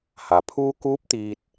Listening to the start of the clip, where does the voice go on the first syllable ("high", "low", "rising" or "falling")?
low